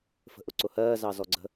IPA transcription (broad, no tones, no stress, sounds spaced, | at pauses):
f ə̤ ʔ ʊ ǀ ʊ h ɜː z ɑ z ɔ ɡ͡ǀ ə̤